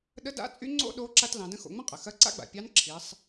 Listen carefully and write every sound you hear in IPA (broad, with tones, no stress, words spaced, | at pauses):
ɗə˧˥da̰˧˥t͡sʼy˧˥ ŋ͡ǀo̰˥ɗo˧˥ ǁa˧t lɑ̃˩˧də̃˧˥ xo̰˩˧ŋ͡mə̃˥ qʼə˩xɐ˧˥ǀa̰˥ɡ͡ba̰˩ pʲɑ˧˥nǁʰi˩˧sˤ